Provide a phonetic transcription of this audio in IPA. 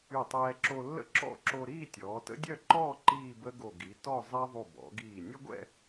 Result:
y˧˩tˤɛː˧ǁo˧ lːə̰˥ǁɔ̰˥˧ǁo˧ɾiː˥˧ tʲɔː˩˧tə̰˥dʲœ˥˧ǃɔː˥˧ ǃiː˥˧bə˥ɡo˧˩ ɡi˩˧tɔ˥˧zˤɛ˥ ðˤu˧˩bɔ̰˩˧ɡiː˧˩ nʲə˥ɡʷɛ̰˥˧

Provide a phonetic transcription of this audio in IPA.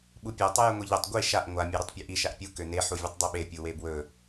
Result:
ɓupʲœ tˤɵjɘŋʷiʎœtˤ ɡʷi ʃaʔ ŋʷa mʲeɾɵtˤpʲøʔi ʃaʔpʲu køne ħuvʲɘtˤdˤiɓe pʲuwebwɵ

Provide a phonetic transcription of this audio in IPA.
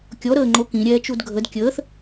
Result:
kʲɔ ɾəːŋ͡ǃokĩ ɾʲɛːt͡ʃudɡʱəd kʲəːθ

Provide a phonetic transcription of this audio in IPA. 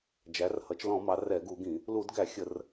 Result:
d͡ʒæ˩˧rhʌ˩˧t͡ʃlɔ̃˧˩˧mɑ˩˧ rɛ˧˩˧ɡu˧˩˧ɡĩ˧˩˧ | lu˧˩˧dɡæ˧˩˧ xʲə˧˩˧r

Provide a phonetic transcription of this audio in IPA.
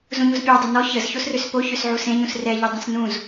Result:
zũɲuzpʲa dˤunɔ çəz çosrøspo çøsʕusẽ ɲũsrɛ ʎydˤũsnũz

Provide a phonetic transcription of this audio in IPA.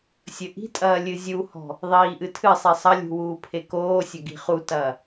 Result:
sʲɘʔi̤tʼɐː lʲɨzʲuhɔ̤ | ðˤiːʔɨtʰɨsˤi sˤɐlʲṳ wuːpʰekoːsʲɐ ɡi̤χutɐː

